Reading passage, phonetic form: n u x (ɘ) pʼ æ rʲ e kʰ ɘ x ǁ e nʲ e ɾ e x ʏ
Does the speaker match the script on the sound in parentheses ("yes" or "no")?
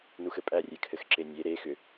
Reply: yes